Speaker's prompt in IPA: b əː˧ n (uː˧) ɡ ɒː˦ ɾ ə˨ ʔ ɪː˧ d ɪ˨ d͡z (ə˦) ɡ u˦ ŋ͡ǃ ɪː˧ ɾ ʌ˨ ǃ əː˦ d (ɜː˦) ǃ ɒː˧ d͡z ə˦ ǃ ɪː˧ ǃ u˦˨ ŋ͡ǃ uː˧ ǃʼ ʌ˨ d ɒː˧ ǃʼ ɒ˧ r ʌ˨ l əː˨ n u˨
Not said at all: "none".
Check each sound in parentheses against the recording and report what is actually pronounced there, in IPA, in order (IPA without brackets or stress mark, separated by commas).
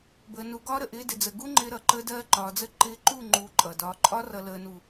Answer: u˧, ə˨, ɜː˦